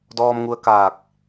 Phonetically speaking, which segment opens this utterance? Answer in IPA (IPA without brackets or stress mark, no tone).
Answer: d